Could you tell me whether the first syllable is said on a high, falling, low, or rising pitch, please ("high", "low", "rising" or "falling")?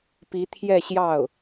rising